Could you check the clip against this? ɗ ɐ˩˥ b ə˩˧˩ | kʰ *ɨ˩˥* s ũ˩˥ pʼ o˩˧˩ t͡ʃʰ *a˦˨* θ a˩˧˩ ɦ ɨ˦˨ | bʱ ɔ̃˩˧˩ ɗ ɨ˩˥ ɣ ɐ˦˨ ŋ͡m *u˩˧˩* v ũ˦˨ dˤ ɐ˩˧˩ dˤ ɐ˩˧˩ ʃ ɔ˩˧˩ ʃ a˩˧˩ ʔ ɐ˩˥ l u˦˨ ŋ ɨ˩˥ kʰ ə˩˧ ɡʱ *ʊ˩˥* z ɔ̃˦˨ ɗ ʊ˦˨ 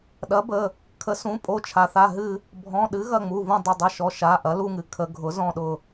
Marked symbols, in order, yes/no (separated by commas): no, no, yes, yes